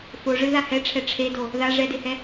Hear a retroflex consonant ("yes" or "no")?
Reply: yes